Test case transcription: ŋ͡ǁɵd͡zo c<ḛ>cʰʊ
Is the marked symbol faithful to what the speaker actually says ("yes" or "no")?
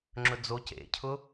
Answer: yes